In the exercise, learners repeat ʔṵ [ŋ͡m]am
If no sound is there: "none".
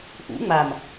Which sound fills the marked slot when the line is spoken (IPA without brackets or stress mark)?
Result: ŋ͡m